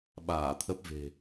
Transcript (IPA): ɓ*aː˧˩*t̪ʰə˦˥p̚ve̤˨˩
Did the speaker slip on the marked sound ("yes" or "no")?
no